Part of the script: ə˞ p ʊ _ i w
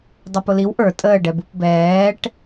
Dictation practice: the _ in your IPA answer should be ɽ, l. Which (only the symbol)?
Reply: l